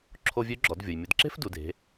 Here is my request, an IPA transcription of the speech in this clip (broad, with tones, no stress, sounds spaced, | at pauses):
ǁʰ o˧ vʲ ø˧˥ ɡ͡ǁ ɔ˩˧ d vʲ ʊ˩ j mʲ ʊ˩˧ d ǁ e̤˥ f d u˩˧ d e̤˩˧